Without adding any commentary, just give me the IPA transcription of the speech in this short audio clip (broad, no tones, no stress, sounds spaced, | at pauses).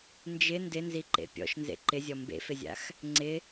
n d͡ʒ ɪ n d ɪ n z i ǃ ḛ pʲ ɔ̰ ʃ n z ḛ ǃ ɪ zʲ ɔ m b ḛ f ɪ zʲ a̰ x | ŋ͡ǀ ɪ